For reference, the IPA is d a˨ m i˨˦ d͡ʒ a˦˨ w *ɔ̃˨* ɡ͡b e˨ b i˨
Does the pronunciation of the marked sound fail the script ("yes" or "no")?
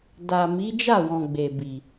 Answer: no